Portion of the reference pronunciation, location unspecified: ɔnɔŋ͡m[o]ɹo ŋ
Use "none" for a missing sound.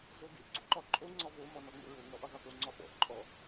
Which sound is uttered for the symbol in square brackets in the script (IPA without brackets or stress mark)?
o̰